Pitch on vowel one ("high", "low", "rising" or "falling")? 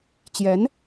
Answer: rising